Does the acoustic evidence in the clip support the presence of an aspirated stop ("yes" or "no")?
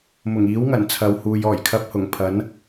yes